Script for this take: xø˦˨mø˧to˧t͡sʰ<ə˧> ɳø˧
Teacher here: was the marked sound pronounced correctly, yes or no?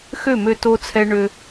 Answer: no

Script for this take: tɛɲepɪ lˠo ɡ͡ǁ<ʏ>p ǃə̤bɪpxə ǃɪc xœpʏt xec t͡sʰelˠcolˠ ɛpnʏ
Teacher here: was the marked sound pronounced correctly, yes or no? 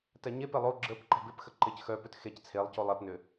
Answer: no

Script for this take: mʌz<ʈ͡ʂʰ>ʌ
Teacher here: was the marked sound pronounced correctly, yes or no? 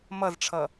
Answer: yes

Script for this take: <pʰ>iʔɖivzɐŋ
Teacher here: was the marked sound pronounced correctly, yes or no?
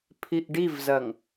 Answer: yes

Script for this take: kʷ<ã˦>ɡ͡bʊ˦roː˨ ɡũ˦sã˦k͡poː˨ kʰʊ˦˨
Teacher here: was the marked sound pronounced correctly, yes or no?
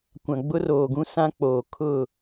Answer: no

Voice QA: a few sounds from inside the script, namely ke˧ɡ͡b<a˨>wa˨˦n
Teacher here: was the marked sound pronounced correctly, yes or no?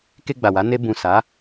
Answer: yes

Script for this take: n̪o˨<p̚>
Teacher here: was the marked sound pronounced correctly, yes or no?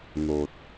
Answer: no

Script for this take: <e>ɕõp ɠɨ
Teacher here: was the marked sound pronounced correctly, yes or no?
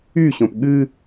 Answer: no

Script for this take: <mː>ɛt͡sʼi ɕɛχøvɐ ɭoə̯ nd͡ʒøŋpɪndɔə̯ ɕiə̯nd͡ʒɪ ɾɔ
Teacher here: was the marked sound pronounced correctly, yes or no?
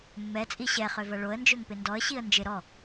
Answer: yes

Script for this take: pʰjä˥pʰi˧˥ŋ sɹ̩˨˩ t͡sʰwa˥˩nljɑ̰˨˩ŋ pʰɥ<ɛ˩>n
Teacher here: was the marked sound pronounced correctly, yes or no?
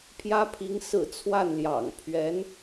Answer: no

